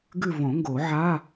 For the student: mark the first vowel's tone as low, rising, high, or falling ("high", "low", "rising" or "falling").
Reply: falling